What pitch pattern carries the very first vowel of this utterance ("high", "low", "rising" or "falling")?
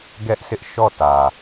high